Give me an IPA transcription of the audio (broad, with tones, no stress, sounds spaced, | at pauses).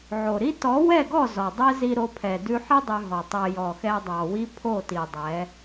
ʕ o˨ ɾ i˦ t ɔ˨˦ w ɛ˦˨ ɡ ɔ˦˨ z ɔ˨ dˤ ɛ˦ z i˧ ɾ o˧ pʰ ɛ˨ d ʉ˧ ħ i˦ dˤ ʉ˧ ɦ ɔ˨ tˤ ɛ˧ j ɔ˨ x ɛ˧ dˤ ɑ˨ w i˦ pʰ o˦˨ t i˨ dˤ ɛ˨˦